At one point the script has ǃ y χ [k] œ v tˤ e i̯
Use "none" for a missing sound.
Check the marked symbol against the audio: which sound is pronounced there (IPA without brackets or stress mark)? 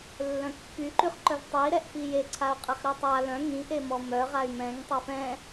ǃ